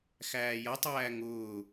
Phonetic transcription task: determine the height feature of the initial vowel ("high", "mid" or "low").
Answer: low